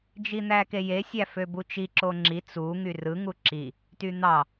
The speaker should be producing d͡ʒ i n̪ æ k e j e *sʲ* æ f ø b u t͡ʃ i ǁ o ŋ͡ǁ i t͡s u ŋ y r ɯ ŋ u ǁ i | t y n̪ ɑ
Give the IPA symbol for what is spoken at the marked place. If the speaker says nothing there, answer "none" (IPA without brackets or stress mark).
sʲ